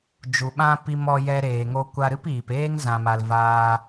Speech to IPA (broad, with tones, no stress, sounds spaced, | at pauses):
d͡ʒ u˨ ɓ ã˦ p i˧ m ɔ˧ j ɛ˧ ɾ eː˨ ŋ o˧ kʷ a˧ ɾ ɨ˦ p iː˨ p eː˦ ŋ z ã˨ m a˨ l v aː˧